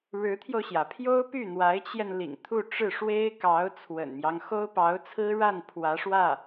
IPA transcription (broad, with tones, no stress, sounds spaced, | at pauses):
ɻ ɻ̩˧˥ t̪ʰ j o˧ ʊ̯ ɕ j ä˩ pʰ j o˥ ʊ̯ p y˥˩ n̪ w a˧˥ ɪ̯ t͡ɕ j ɛ˧ n l ḭ˨˩ ŋ t̪ʰ u˥˧ ʈ͡ʂ ɻ̩˥˩ ʂ w e˥ ɪ̯ k ɑ˧˥ ʊ̯ t͡sʰ w ə̰˨˩ n m j ɑ˦ ŋ x o˥ ʊ̯ p ɑ˧˥ ʊ̯ t͡sʰ ɹ̩˥ ɻ a˥˩ n pʰ w ä˧˥ ʂ w ä˥˩